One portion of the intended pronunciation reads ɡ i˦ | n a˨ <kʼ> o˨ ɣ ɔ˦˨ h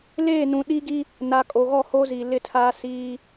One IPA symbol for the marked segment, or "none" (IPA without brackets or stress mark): kʼ